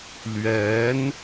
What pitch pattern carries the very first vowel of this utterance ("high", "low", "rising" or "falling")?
rising